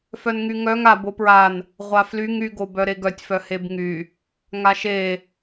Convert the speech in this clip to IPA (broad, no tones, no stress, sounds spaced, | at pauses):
f œ n ŋ y ŋ œ ŋ a b o p ɹ a n | ʁʷ a f l y ŋ y ɡ o b œ ɾ e ɡ œ tʲ f œ h e b ŋ y | ŋ a ʃ e